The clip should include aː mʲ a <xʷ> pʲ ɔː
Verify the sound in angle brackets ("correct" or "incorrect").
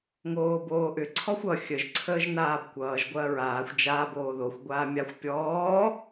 correct